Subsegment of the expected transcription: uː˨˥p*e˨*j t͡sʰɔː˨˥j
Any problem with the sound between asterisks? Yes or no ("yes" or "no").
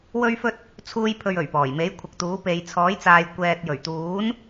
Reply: yes